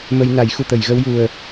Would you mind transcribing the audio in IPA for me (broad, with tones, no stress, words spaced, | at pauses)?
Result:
mə˧jna˨˩˦j xu˨˩˨t̪ə˨˩˨j ɣə˧wju˨˩ə̯